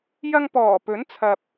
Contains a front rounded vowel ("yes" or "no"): no